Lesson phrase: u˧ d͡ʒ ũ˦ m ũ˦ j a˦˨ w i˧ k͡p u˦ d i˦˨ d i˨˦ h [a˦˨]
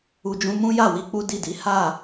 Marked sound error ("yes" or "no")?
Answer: no